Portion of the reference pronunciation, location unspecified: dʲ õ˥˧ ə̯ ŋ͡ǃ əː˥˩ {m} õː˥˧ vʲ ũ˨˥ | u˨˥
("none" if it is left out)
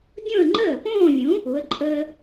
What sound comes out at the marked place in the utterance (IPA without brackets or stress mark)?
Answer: p